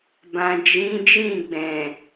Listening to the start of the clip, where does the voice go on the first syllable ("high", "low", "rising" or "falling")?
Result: low